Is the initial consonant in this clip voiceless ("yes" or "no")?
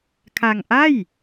yes